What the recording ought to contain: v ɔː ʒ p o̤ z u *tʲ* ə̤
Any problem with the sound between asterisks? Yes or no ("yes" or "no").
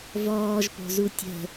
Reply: no